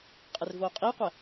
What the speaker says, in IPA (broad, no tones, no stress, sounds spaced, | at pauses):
qʼ ɪ r v oː qʼ iː qʷ ɛ